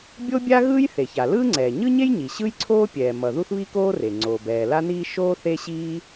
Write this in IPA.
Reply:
bʲ o˥ bʲ a˥ ɣ ɯː˥ j θ e˩ ç a˩ l ɯː˥ ŋ͡ǀ ɛː˩ ɲ ɯ˥ ɲ e˥ j ɲ i˩ ɕ ɯ˥ j ǀʰ oː˥ pʲ ɛː˩ m ʌ˩ ð u˥ θ β i˥ k oː˥ r e˩ ŋ͡ǀ oː˩ b ɛː˩ l a˥ n iː˥ ʃ oː˥ θ e˥ ɕ iː˥

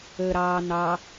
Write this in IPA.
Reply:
əː ɾ ɑː n ɑ

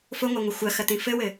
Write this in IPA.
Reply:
f ʊ ŋʷ a ŋʷ ɐ xʷ ɐ x ɐ t̪ ĩ f ɘ w ɘ

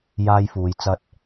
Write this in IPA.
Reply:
j aː˥ j f uː˨˧ j t͡s ɐ˧ t̚

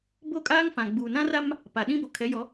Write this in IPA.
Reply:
b o˦ kʼ aː˦ ŋ f ã˨ ɡ͡b u˨ n ã˦ r a˦ m | p a˨ ɗ ĩ˦ b o˨ kʰ ɛ˨˦ j ɔ˨˦

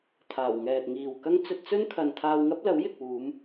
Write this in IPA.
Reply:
t̪ʰ aː˨˩ w ŋ ɛː˨ t̚ ŋ iː˨ w k ɐ˥ ŋ t͡s ɵ˧ t̚ t͡s ɵ˥ n kʰ ɐ˧ n t̪ʰ aː˧ w ŋ ɐ˥ p̚ l ɐ˨˥ w j ɪ˨ k̚ w uː˨˧ m

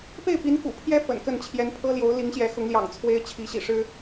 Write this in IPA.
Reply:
p e˥˩ ɪ̯ p i˧˥ n k ṵ˨˩ pʰ j ɛ˥ f ə̰˨˩ n k ə˥˩ n t͡ɕʰ j ɛ˧˥ n pʰ ɤ˥ l j o˧˥ ʊ̯ l i˧˥ ŋ ɕ j ɛ˧˥ x ʊ˧˥ ŋ l j ɑ̰˨˩ ŋ t͡sʰ w e˥ ɪ̯ t͡ɕʰ i˧˥ ɕ ḭ˨˩ ʂ ɻ̩˥

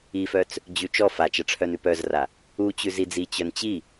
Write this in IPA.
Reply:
i f œ t͡s | d͡ʑ ʉ t͡ʃ ɔ f a t͡ʃ ɐ ʈ͡ʂʰ œ n ʉ p œ z r a | u t͡ɕ ʉ z i d͡z i t͡ɕ œ n t͡ɕ i

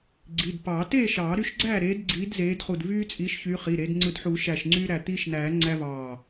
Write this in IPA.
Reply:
ɡ͡ǀ i˩˧˩ d p ɑ˨˩˦ t eː˥˨ ʃ ɑː˨˩˦ ɾ y˦ ʃ ɡ͡ǀ æː˥˨ ɾ eː˨˦ d ɡ͡ǀ iː˨˦ d z eː˨˦ d χ u˧˩ d v yː˦ t͡sʼ i˨˦ ʃ ç y˨˦ χ i˩˧˩ ɾ e˨˦ d ŋ͡ǀ ɯ˧˩ d ħ uː˨˩˦ ʃ æ˧˩ ʃ ŋ͡ǀ yː˦ ɾ æ˧˩ t̪ iː˦ ʃ n æː˨˩˦ ŋ͡ǀ æ˦ v ɑː˧˩

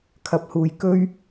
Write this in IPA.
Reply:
kʰ ɐ˧ p̚ h uː˧ j k ɵ˥ ɥ

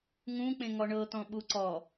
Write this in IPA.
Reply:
ŋ ũ k͡p ẽ ŋ ɔ ɳ ɤ t̪ ɔ̃ ɓ u ǀ ɔ

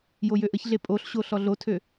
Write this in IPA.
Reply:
j o j ø ʔ ə ç ɮ e pʼ o ɬ ɕ o ɬ ɔ ɮ o tʰ ø

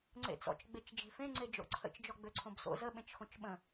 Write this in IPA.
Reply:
ŋ͡ǀ ḛ t͡s ɔ̰ t͡ʃ ɡ͡b e t͡ʃ d͡ʒ e̤ f ẽ ŋ͡ǀ e d͡ʒ o̰ ǀʰ ə̰ t͡ʃ d͡ʒ ɔ ɡ͡b ø ǀʰ õ b s o̰ z ə ɓ ẽ t͡ʃ x õ t͡ʃ ɓ ə̃

